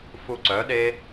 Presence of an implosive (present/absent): present